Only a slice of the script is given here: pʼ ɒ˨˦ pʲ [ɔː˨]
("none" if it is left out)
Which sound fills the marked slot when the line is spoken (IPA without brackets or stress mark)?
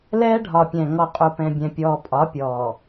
ɔː˨